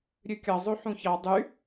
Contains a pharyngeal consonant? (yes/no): yes